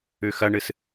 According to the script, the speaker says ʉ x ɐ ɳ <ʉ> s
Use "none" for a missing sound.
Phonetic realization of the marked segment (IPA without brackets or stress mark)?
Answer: ɨ